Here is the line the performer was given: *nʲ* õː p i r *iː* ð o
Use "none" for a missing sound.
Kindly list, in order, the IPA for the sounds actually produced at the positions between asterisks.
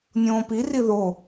nʲ, i

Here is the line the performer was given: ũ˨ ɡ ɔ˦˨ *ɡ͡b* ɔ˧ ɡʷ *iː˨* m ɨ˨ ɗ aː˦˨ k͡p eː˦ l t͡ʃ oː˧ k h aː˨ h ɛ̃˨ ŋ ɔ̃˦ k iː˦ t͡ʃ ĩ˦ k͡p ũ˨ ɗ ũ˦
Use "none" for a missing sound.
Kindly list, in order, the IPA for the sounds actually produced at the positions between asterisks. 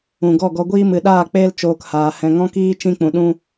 ɡ, iː˦

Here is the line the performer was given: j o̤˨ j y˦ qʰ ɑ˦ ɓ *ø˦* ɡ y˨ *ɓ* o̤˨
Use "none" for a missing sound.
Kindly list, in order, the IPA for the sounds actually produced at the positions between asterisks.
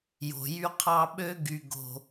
ø˦, ɡ

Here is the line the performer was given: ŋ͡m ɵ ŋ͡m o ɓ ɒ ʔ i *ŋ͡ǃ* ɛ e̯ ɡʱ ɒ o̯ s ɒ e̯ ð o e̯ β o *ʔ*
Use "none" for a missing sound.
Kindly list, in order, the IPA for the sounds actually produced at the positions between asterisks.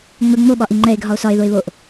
ŋ͡ǃ, ʔ

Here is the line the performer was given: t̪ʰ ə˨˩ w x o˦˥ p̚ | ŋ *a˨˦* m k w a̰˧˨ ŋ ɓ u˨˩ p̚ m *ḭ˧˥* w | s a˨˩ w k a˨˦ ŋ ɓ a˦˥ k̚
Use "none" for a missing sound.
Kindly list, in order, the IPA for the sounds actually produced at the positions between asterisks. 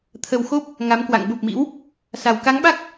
a˨˦, ḭ˧˥

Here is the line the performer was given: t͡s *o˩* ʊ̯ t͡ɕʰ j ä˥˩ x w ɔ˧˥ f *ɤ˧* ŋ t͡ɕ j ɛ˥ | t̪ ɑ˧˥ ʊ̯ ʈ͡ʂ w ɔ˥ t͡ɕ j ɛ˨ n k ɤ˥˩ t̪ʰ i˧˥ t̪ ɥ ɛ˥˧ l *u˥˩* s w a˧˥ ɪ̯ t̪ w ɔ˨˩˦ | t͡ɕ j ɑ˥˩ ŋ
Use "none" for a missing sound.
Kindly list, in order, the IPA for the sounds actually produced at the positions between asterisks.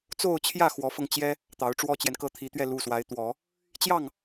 o˥˧, ɤ˧, u˥˩

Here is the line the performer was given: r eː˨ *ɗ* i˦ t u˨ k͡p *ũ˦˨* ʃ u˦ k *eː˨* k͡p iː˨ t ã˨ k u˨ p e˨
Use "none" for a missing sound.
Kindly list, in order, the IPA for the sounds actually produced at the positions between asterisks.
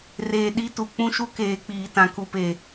ɗ, ũ˦, eː˨

